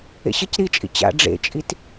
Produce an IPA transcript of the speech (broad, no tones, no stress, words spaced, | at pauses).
ḛɕəc ɾit͡ʃʼḭ t͡ɕa̰ ɖ͡ʐḛt͡ʃʼit